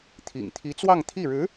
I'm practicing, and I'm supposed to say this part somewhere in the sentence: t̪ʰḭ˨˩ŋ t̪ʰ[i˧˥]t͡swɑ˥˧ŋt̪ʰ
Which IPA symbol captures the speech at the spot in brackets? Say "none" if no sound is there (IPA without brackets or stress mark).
i˧˥